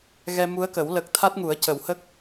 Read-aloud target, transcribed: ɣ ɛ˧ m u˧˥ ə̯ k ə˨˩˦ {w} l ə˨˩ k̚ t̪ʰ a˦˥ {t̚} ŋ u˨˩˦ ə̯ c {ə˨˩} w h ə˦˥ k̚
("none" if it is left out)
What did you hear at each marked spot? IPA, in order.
w, t̚, ə˨˩˦

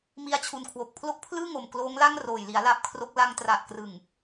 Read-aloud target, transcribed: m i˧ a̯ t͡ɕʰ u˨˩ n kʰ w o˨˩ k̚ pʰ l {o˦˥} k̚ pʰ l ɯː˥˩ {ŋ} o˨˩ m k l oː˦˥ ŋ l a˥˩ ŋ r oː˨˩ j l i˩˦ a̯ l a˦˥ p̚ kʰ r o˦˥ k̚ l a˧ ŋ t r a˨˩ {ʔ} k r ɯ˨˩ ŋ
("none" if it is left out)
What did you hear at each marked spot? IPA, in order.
o˦˥, ŋ, ʔ

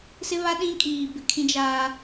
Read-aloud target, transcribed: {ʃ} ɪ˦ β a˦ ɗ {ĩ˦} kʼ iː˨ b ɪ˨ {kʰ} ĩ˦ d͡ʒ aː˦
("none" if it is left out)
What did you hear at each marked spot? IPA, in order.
s, ĩ˦, kʰ

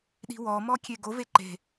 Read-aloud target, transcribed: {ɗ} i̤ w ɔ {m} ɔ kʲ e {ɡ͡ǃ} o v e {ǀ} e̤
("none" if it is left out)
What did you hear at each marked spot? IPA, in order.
ɗ, m, ɡ, ǃ

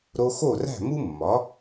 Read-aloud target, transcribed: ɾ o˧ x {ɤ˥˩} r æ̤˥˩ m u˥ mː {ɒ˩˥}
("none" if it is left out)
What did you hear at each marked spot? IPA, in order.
o˥˩, ɒ˩˥

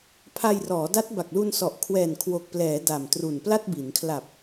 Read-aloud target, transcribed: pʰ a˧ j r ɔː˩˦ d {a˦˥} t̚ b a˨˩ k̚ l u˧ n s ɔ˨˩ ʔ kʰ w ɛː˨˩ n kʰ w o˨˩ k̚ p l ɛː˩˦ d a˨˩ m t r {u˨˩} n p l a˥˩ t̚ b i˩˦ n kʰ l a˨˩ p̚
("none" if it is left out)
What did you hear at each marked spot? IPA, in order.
a˦˥, u˨˩

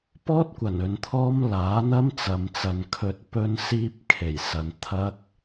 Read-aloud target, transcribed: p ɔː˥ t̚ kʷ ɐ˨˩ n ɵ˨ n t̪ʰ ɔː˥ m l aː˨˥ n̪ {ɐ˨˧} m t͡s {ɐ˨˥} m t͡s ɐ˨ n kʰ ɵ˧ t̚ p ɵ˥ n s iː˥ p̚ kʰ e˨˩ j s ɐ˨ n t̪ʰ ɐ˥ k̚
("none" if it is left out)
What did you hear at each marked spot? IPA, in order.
ɐ˥, ɐ˨

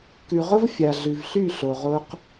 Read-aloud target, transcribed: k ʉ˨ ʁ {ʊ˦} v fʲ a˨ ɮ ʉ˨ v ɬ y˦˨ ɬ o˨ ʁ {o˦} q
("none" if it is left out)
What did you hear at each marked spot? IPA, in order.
ʊ˦, o˦

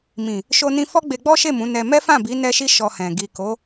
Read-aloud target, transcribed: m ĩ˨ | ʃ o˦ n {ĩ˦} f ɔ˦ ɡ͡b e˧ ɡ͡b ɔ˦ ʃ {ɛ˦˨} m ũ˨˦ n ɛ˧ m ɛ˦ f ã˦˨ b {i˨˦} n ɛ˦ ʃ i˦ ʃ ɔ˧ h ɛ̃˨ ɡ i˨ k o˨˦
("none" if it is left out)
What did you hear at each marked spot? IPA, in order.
ĩ˦, e˦˨, i˨˦

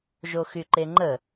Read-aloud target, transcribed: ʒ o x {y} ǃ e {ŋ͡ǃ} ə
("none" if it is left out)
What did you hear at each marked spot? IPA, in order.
y, ŋ͡ǃ

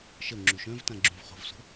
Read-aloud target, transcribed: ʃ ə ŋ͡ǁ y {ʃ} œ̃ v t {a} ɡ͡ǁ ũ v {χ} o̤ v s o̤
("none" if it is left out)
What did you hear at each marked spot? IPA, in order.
ʃ, ã, χ

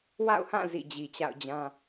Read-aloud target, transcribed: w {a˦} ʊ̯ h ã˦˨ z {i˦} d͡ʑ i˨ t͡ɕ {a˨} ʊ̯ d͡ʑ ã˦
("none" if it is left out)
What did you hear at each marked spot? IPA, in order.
a̰˦˨, ḭ˦˨, a̰˦˨

